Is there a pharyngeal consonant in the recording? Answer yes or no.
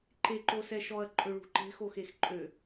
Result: no